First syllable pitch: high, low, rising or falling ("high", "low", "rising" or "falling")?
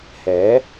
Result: rising